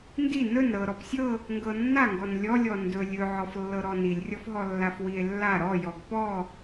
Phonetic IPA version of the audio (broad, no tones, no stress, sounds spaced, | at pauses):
n d i n ɵ n ɾ ɤ ɾ ɔ p sʲ ɤ | ŋ ɡ ɤ nː a ŋ ɡ ɔ n lʲ ɔ lʲ ɔ n d ɵ lʲ ɵ ʕ ɔ f lː ɤ ɾ ɔ n i lʲ rʲ ɔ f ɦ ɔ lː a f w i e̯ lː a ɾ ɔ j ɔ ɡ p ɔ